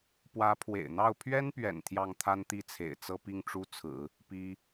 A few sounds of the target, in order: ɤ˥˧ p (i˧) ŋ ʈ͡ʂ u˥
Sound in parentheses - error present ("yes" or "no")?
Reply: yes